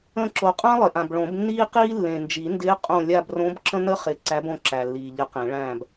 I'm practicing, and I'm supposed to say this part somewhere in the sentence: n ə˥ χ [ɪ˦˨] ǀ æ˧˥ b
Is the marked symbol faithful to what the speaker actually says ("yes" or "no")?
no